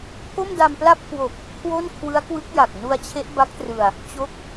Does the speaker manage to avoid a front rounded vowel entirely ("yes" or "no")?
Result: yes